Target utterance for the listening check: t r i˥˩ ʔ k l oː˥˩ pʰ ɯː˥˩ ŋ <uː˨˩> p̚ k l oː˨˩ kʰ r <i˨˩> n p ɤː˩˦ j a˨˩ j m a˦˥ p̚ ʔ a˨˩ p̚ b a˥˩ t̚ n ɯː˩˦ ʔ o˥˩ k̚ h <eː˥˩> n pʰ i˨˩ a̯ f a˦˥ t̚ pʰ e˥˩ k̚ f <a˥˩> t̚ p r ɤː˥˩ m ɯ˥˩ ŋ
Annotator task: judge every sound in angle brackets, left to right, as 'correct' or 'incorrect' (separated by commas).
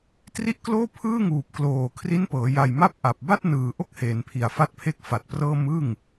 correct, incorrect, incorrect, incorrect